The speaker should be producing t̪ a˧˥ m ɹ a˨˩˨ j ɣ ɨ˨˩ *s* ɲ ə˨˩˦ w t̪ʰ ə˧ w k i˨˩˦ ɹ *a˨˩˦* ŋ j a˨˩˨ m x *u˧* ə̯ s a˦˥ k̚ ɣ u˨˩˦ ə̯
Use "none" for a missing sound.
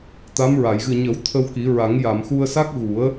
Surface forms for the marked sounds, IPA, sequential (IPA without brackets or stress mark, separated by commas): none, a˨˩˦, u˧